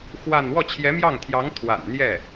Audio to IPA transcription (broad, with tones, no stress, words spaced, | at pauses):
xwa˥˧n wɔ˥˩t͡ɕʰjɛ˧˥mjɑ˥˩ŋt̪ʰjɑ˧˥ŋ t̪ʰwa̰˨˩nn̪jɛ˥˩